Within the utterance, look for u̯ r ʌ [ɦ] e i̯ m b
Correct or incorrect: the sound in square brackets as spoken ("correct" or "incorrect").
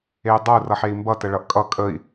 incorrect